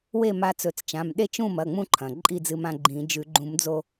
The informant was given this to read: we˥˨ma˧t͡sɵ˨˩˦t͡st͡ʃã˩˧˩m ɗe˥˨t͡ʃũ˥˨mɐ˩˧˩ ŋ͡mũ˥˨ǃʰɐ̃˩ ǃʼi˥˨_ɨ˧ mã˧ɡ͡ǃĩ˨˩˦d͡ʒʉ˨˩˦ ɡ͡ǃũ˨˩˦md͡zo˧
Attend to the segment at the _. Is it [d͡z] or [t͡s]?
d͡z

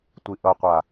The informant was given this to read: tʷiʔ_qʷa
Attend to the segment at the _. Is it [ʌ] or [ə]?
ʌ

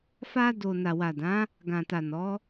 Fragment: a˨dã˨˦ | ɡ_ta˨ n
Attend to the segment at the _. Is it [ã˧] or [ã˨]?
ã˨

